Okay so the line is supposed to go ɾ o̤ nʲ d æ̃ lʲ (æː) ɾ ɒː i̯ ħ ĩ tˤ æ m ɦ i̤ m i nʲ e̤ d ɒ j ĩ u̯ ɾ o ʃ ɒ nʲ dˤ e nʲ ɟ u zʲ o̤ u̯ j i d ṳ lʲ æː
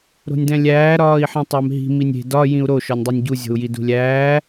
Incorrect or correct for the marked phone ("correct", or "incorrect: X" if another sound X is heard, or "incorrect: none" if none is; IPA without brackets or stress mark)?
correct